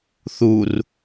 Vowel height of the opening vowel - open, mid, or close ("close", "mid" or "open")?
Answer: close